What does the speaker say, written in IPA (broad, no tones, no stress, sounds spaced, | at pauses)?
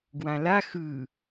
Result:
ɡ w ã l a x ɯ